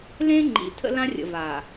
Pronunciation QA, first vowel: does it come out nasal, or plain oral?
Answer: nasal